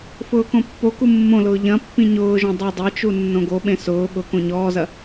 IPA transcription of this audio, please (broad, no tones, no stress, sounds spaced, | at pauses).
f ʊː k õ pː o k u mː õ l ʊː ʎ ɐ̃ pː ĩ ɲ ʊː ʒ õ dˤ e dˤ e t͡ʃ u nː õ ɡ o ɓ ẽ s ʊː ɠ ʊ k õ ɲ ɔː z ɐ